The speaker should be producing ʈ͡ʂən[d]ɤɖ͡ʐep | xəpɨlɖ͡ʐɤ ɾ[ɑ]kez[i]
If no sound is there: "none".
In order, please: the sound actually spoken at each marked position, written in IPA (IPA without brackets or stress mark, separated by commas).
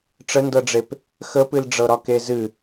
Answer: d, ɒ, ɨ